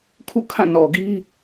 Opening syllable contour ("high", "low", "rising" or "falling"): falling